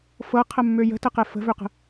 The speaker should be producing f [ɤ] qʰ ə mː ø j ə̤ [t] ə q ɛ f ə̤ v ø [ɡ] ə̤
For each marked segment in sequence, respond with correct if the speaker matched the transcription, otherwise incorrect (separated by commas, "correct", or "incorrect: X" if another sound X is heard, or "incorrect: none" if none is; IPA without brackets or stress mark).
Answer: correct, correct, incorrect: q